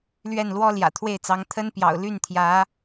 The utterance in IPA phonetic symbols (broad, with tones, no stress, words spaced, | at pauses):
lɥɛ˥˩nlwɔ˥ ljä̰˨˩t̪ʰwe˥˩ɪ̯t͡sɑ˧˥ŋ t̪ʰə˥npjɑ̰˨˩ʊ̯ ly˥˩nt̪ʰjä˧˥